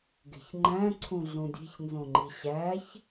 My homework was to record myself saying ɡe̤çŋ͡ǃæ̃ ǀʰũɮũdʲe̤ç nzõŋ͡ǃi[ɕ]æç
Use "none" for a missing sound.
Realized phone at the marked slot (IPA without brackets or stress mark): ɕ